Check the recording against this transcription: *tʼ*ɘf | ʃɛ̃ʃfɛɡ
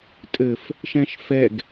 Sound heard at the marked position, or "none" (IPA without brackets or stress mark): tʼ